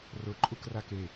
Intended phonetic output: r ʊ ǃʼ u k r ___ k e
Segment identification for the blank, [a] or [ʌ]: a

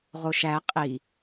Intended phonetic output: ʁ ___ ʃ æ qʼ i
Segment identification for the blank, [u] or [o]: o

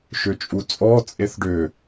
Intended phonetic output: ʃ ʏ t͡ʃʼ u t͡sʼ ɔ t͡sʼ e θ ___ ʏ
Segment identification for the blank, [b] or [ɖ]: ɖ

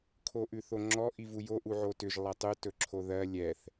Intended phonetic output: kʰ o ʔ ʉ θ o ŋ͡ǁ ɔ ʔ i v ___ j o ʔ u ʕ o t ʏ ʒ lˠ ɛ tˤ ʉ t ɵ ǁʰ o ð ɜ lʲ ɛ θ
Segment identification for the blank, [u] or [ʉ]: u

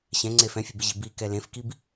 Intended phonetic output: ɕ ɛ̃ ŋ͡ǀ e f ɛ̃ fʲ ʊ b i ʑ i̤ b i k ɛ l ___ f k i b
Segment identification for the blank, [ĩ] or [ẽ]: ẽ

